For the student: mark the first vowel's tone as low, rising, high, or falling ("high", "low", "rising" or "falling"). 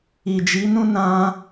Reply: low